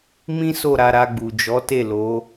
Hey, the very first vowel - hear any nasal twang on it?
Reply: yes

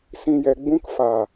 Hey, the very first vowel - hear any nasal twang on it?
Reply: yes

